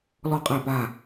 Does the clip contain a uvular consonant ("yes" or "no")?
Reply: yes